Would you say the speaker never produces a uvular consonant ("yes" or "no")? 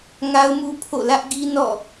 yes